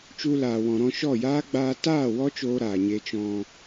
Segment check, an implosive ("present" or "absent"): absent